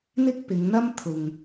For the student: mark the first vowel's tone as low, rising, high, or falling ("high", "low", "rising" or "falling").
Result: high